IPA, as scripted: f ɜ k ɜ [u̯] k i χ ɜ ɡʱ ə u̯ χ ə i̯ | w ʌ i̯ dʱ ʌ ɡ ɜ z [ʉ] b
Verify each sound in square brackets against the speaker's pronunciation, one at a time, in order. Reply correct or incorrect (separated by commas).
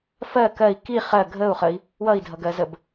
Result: incorrect, incorrect